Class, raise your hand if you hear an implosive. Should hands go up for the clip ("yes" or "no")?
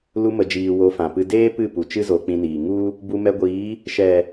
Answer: no